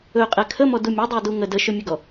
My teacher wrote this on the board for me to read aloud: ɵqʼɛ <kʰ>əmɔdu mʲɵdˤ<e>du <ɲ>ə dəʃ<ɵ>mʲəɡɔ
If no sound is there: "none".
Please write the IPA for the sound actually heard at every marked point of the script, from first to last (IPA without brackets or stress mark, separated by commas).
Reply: kʰ, e, ŋ, ɵ